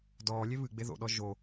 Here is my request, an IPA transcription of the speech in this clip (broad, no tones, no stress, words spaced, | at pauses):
dɔːlʲe βɨɡ͡be ðo̰ɗɔ ʒo